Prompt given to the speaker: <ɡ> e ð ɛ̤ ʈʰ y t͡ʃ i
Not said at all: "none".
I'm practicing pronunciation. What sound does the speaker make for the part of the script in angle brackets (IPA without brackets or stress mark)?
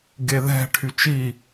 ɡ